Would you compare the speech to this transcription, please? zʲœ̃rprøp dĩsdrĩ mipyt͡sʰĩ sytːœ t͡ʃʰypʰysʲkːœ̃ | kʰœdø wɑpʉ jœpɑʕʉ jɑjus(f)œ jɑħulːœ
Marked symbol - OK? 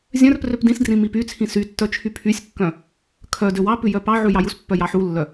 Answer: no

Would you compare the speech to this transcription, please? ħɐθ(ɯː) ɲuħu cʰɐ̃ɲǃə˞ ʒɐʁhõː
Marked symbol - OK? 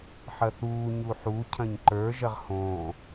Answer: no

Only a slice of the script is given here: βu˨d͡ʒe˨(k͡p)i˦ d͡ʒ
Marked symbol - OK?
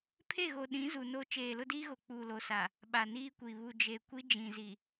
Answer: no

